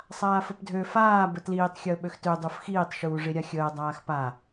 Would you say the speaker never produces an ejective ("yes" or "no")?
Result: yes